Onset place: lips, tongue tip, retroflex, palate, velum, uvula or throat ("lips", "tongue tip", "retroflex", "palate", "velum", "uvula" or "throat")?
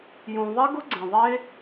palate